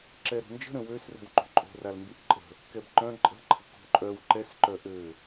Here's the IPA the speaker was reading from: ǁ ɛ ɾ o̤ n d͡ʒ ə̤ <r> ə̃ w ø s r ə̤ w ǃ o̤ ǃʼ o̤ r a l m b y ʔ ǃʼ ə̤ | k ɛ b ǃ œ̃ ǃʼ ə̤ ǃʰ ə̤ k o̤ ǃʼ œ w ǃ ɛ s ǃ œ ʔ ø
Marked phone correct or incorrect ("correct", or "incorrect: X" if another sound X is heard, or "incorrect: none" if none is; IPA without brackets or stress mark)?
incorrect: ɾ